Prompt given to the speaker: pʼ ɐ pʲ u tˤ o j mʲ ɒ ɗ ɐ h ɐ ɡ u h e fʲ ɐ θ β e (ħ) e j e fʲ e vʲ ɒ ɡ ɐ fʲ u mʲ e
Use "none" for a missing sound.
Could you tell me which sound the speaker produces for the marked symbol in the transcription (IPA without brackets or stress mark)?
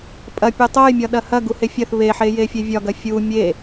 ħ